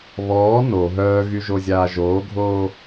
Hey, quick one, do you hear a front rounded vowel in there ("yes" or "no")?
yes